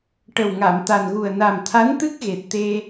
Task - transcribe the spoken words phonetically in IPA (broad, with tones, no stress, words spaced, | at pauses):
ʈə˨˩wŋa˨˩˨mt̪a˨˩nɣu˨˩ə̯ na˨˩mt̪ʰa˧˥nt̪ɨ˦˥k̚ ɣe˨˩t̚t̪e˧